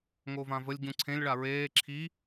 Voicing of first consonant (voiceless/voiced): voiced